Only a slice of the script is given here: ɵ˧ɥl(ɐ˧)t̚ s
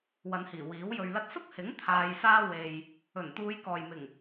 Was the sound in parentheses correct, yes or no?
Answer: no